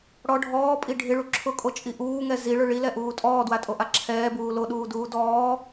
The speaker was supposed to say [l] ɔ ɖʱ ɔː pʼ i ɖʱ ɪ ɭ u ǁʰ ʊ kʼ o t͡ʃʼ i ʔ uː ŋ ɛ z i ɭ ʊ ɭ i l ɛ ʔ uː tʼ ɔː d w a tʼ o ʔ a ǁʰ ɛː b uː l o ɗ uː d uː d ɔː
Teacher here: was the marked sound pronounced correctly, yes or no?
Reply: no